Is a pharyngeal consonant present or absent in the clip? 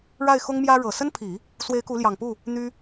absent